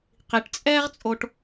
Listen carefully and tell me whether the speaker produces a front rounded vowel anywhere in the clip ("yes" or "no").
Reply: no